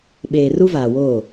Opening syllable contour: low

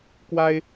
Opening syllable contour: high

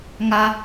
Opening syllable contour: high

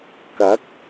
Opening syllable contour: rising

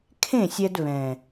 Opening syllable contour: falling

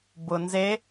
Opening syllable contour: low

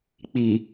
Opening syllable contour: low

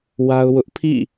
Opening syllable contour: high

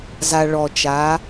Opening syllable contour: low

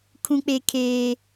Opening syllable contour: high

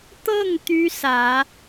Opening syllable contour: falling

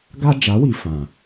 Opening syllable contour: high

